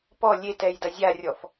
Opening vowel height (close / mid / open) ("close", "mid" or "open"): mid